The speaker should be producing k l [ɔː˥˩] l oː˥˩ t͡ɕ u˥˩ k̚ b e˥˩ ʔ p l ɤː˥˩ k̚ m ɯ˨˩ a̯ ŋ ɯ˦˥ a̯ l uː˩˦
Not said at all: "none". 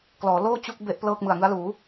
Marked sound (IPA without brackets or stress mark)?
ɔː˩˦